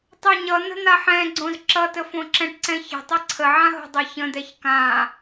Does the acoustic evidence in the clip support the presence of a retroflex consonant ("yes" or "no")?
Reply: yes